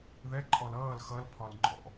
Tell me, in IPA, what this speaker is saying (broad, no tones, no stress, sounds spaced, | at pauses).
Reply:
ð ɛ ǃʼ ɔ l ʌː l x ʌ l pʰ ɒ l ŋ͡ǃ ɔ̰